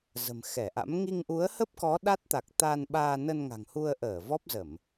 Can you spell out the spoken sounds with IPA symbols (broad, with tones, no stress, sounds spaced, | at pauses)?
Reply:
z ə̤˨˩ m x ɛ˧˩ ʔ a̰˧˥ m ŋ i˧ ŋ ʔ u˨˦ ə̯ h ə˦˥ p̚ k ɔ˨˦ ɗ a˦˥ t̚ t̪ a˨˩ k̚ t̪ a˧ n ɓ aː˧ n ə˧ n ŋ a̤˨˩ ŋ h u˧ ə̯ ʔ əː˧˩ v ɔ˦˥ p̚ z ə˧˩˨ m